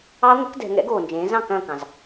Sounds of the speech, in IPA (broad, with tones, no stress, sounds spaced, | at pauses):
ɑ˦˥ ŋʷ ɛ˩˥ k d ɛ̤˩˧ ŋ ɛ̰˩˥ ɡ oː˩ n d͡ʒ ẽː˩˧ z ɑ̃˦˨ k ɐ̃ː˦˨ k ɑ̃˩ z